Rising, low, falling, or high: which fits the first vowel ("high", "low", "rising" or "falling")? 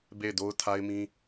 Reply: falling